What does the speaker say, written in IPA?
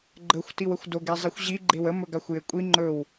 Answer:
ɡ͡ǃ ə xʷ t i w ə xʷ d o ɡ e zˤ i xʷ ʑ i ɡ͡ǃ e w ə m ɵ ɡ a xʷ j e kʷʼ i ŋ͡ǃ ɵ w

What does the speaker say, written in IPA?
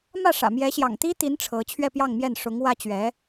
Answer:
m ä˥˩ ʂ ä̰˨˩ m j ɛ˧˥ ɕ j ɑ̰˨˩ ŋ t̪ i˥ t̪ i˧˥ n ʈ͡ʂʰ ɤ˧˥ t͡ɕʰ ɥ ɛ˥˧ p j ɑ˥˧ ŋ m j ɛ˥˩ n ʂ ʊ˧˥ ŋ w ä˥ t͡ɕ ɥ ɛ˧˥

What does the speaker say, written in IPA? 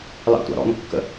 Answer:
l ɑ̰ tʷ ɑ̰ ɾ ɔ̰ n kː ə̰

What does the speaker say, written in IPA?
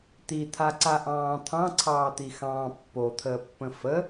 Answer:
t̪ i t̪ʰ a ǀ a ʔ ɑ̃ː t̪ʰ ɑ̃ ǀʰ ɑː t̪ i x ɑ̃ː pː o t̪ʰ əː pː ə̃ f ə

